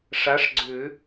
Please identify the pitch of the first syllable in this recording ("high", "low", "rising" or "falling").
rising